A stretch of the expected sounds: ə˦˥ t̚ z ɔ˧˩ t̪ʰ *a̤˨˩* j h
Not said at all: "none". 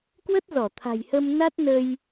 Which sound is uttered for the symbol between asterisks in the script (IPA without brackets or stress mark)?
a̤˨˩